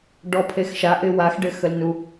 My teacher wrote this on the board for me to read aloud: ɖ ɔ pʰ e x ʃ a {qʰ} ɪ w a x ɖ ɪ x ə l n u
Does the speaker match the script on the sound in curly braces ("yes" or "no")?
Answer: no